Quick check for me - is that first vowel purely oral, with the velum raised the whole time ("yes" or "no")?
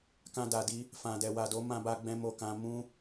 no